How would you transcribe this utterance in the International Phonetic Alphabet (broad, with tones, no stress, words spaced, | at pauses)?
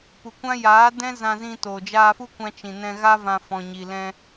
pu˨ kʷã˦ jaː˨˦dɛ̃˦ zã˧zĩ˧to˨ d͡ʒaː˧fu˦kʷã˧ t͡ʃĩ˨nɛ̃˧ɣa˦vã˧ fɔ̃˧ɲi˧ lɛ̃˧